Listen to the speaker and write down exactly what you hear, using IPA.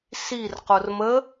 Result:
s i r q o r m ə

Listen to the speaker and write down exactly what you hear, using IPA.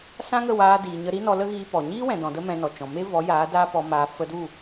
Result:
s ã˦ ŋ ə˦˨ w aː˧ d iː˨ ɲ ə˧ ɾ i˦ n ɔ˧ l ə˦ ɣ iː˧ p ɔ˨ ɲ iː˦ w ɛ̃˨ d ɔ̃˨ d ə˦ m ɛ̃˧ n ɔ˨ t͡ʃ ɔ̃˨ m e˦ v ɔ˨˦ j aː˨˦ d aː˦ p ɔ˧ m aː˧ f ə˧ d u˦˨

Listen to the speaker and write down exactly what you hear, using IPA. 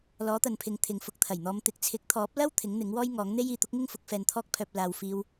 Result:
l ɔː˨˥ t̪ ɐ˨ n pʰ ɪ˨˧ ŋ t̪ʰ ɪ˨ ŋ f ʊ˧ k̚ t̪ʰ ɐ˨˩ j n̪ ɔː˧ m t̪ ɪ˨˥ k̚ t͡sʰ ɪ˨˥ k̚ t̪ʰ ɔː˨˥ p̚ l ɐ˥ w t̪ʰ ɪ˨˥ ŋ n̪ ɪ˨˥ ŋ w ɔː˥ j ŋ ɔː˨˥ ŋ n̪ e˥ j iː˨ t̪ ʊ˥ k̚ ŋ ɪ˥ ŋ f ʊ˨˥ k̚ f ɛː˧ n t̪ʰ ɔː˥ k̚ pʰ œː˧ p̚ l aː˧ w f iː˥ w

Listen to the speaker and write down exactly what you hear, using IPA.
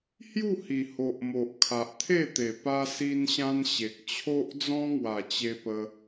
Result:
h j u˥˧ h i˨˩ h o˨ ʔ m o˨ ʔ kʰ a˨ ʔ t̪ʰ e˥˧ t̪ e˨˩ p a˧ s i˧ n ɕ ã˧ n ɕ e˨ k̚ t͡ɕʰ o˦ ʔ d͡z ɔ̃˦ ŋ w a˨˩ t͡ɕ e˧ p ə˧

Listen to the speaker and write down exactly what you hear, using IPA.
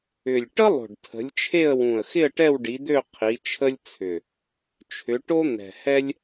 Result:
ʏ˨˩ lʲ ʈ ə˥ lˠ o̤˨˩ ɖ tʰ ə̤˨˦ lʲ t͡ʃʰ e˥˧ ə̯ w ũ˨˩ ə̯ x ɪ˥˧ ə̯ ʈ ɛ˥˧ w ɖ i˨˦ d̪ ø˥˧ qʰ i˨˦ t͡ʃʰ ə˥ lʲ t͡sʰ ʏ˨˩ | t͡ʃʰ ʏ˨˦ ʈ o˥ n̪ ɛ̤˨˩ h ɛ˥ lʲ

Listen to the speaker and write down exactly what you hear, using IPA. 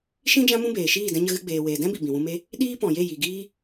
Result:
ʃ ĩ˦ d͡ʒ ã˦ m ũ˦ b eː˨ ʃ iː˦˨ d ɛ̃˧ ɲ ə˧ ɣ ɨ˧ ɡ͡b eː˨ w eː˨ d ɛ̃˦ b i˨ b ĩ˨ w ũ˧ m e˦ | ɗ iː˦ p ɔ̃˨ j e˦˨ j i˨ ɡ iː˦

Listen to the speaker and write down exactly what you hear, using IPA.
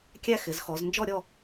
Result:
kʲ æ˥ x ɪ˩˧ z x ɔ˩˧ z n d͡ʒ ɔ˥˧ ɾʲ ɔ˥˧

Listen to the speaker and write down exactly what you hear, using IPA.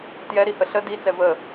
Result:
t j ɛ ɾ i h ə ɬ ə d i t͡s ɛ v ə

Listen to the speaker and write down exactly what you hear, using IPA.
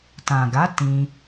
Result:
t ã˨ ɡ a˨˦ t ĩ˧

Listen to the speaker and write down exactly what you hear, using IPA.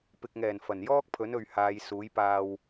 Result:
p ɪ˨ k̚ ŋ ɛː˨˩ n f ɐ˨˩ n j ɔː˥ k̚ pʰ ɵ˨˥ n ɵ˨ ɥ h aː˨˧ j s uː˨˥ j p aː˧ w

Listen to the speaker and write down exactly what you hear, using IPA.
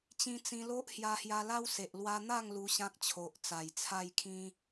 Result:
t͡ɕ ĩ˧ t͡s ĩ˧ l o˦ ʔ h j a˧ h j a˧ l a˦ w s e˨ ʔ l w a˧ n̪ a˥˧ ŋ l u˧ ɕ ã˦ k̚ t͡ɕʰ o˨ ʔ t͡s a˨˩ j t͡sʰ a˥˧ j kʰ ĩ˦

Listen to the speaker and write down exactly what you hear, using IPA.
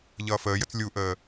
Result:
ʎ ʌː f əː j ə t͡s lʲ u ʔ əː

